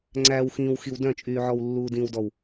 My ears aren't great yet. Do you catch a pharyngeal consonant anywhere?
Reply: yes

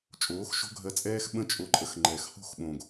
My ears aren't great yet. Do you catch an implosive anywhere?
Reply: yes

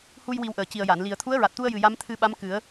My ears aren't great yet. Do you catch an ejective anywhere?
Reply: no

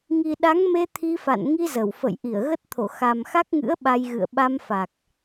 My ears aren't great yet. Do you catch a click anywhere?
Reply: no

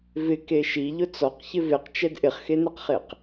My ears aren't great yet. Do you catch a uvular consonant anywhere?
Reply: yes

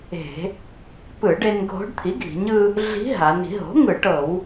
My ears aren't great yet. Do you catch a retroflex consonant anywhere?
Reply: yes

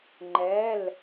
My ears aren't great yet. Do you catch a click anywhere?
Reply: yes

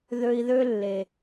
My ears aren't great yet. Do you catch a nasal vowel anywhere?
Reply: no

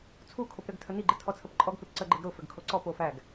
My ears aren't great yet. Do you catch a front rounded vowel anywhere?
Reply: no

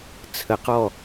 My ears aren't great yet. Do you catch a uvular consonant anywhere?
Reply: yes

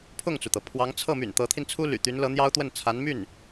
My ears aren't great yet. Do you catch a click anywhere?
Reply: no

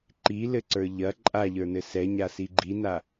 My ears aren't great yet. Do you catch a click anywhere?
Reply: yes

